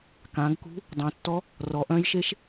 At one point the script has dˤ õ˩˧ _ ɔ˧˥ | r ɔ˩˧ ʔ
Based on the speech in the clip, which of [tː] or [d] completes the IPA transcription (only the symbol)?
tː